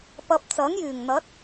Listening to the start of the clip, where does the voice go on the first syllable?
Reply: low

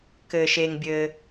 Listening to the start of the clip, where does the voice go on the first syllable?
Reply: low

